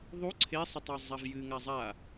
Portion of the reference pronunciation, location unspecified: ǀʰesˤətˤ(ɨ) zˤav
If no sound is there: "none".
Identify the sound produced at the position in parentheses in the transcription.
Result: ɛ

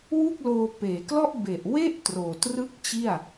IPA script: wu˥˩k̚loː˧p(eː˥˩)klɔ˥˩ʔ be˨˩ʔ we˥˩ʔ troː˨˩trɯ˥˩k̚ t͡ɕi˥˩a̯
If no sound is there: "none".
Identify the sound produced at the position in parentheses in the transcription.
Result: eː˩˦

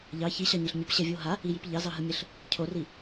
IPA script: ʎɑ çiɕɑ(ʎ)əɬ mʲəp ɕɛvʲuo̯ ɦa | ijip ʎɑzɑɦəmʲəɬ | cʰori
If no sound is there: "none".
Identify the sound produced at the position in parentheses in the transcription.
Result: ɲ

